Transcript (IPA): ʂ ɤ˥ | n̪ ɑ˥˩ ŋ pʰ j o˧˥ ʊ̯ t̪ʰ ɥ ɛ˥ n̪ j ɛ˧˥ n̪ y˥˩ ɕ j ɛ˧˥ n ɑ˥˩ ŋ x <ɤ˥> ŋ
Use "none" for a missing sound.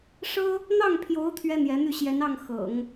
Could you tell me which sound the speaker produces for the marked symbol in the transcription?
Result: ɤ̰˨˩˦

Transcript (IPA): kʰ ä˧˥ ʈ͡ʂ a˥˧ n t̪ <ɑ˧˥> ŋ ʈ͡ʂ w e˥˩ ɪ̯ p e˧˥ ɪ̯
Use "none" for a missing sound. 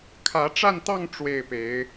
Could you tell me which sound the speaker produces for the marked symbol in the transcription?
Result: ɑ˥˧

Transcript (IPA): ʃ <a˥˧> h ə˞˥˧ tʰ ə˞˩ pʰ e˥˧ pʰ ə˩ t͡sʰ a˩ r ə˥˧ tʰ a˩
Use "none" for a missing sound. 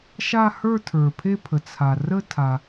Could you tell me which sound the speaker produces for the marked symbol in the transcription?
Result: a˥˧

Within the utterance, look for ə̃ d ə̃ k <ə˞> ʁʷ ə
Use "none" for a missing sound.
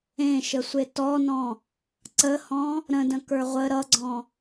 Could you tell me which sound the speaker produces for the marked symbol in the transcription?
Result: ə˞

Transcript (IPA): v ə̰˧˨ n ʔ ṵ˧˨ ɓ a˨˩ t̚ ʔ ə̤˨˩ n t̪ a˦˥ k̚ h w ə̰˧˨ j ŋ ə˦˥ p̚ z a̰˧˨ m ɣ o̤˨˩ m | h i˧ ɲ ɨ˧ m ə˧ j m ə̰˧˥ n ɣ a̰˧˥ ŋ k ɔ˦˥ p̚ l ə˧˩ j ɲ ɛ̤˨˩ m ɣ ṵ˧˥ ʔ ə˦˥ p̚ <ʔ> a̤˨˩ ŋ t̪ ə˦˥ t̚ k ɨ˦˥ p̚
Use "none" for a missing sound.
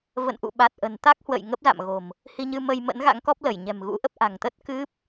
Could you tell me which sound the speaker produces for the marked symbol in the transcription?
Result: ʔ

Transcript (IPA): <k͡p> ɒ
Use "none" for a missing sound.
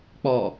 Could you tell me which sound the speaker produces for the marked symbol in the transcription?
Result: k͡p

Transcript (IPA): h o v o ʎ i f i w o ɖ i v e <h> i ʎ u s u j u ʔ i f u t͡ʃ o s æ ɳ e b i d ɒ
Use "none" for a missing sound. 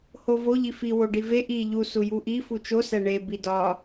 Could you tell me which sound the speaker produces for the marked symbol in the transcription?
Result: ʔ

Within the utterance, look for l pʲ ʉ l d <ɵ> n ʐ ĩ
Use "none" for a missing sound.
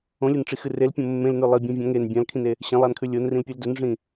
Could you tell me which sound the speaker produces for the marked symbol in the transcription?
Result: ɵ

